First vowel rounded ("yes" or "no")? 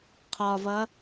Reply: yes